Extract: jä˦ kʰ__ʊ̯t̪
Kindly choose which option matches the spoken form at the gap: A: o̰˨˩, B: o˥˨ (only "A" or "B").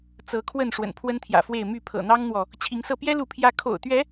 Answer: A